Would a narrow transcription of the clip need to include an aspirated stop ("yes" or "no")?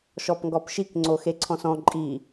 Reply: yes